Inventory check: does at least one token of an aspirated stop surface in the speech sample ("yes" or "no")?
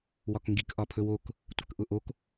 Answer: yes